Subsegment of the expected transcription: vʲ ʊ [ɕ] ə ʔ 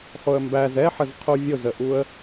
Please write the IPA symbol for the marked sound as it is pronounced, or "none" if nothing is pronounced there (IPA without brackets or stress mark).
z